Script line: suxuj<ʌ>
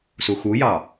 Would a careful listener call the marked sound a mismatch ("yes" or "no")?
yes